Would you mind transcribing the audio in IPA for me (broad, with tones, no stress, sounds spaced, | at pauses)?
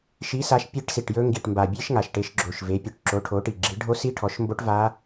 ʃ i˩˥ s a˩˥ ʃ pʲ e˦˥ ʈ s i˨˩ ʈ j ɵ˦˥ ŋ ɡ i˨˩ ʈ m b a˨˩ bʲ e˦˥ ʃ ŋ a˨˩ ʃ ʈ e˩˥ ʃ ɡ͡ǁ o˨˩ ʃ v e˩˥ pʲ ɵ˨˩ ʈ ǁ o˩˥ ʈʰ o˩˥ ʈ i˨˩ ɡ͡ǁ i˩˥ ɖʱ o˦˥ s i˦˥ ʈʰ ɔ˩˥ ʃ m b o˦˥ ʈ v a˦˥